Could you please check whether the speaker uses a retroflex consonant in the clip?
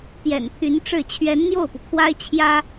yes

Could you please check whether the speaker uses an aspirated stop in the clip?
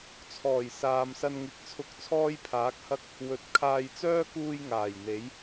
yes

